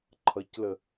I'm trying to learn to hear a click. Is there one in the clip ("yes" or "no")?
yes